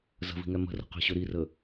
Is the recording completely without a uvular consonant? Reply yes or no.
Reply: no